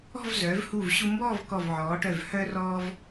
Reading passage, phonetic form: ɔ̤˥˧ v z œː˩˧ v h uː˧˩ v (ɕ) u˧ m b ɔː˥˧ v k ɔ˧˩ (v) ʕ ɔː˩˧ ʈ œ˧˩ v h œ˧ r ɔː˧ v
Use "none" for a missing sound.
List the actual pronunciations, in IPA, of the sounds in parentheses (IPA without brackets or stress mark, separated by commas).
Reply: ɕ, v